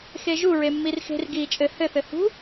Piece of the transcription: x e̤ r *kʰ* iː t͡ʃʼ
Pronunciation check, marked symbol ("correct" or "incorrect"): incorrect